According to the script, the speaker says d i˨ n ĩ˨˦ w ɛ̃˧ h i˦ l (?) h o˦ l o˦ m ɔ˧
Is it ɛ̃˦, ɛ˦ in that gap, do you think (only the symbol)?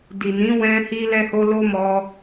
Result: ɛ˦